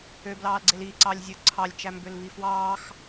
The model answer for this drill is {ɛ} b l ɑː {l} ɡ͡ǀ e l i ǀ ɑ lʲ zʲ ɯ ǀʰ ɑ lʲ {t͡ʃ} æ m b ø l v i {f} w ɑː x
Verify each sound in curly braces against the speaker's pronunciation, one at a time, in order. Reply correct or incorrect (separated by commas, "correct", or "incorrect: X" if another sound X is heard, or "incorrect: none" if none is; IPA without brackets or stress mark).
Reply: incorrect: ø, correct, correct, correct